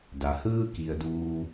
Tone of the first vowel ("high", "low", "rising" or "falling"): low